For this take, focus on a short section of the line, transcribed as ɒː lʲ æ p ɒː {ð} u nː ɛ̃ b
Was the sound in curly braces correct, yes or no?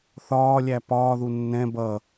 yes